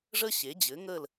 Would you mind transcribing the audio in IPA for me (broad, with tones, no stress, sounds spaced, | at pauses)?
ʐ ə˥ ɕ e˩˥ d͡ʑ ɘ˩˥ ŋ ə˥˨ l